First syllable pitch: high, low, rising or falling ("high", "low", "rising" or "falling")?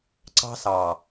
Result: high